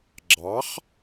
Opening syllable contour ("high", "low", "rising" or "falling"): rising